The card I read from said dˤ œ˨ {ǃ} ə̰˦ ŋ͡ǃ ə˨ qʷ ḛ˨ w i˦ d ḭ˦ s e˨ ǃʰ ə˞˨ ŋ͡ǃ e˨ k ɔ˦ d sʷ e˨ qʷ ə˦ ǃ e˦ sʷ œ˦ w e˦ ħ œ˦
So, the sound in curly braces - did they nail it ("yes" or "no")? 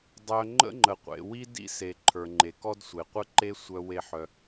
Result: no